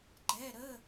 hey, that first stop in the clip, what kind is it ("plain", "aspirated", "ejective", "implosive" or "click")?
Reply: click